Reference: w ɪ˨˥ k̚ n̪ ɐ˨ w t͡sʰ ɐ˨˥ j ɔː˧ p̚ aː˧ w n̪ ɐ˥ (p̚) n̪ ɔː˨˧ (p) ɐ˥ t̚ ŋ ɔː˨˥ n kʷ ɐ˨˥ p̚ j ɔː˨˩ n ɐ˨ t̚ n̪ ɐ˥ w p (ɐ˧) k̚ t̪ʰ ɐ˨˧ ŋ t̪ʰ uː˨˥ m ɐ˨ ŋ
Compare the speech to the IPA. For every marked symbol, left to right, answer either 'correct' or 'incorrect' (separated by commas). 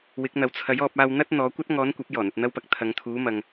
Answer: incorrect, incorrect, correct